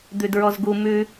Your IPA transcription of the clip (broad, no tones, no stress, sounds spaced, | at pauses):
d̪ ʉ d ɹ ɔ z ɡ u m ʉ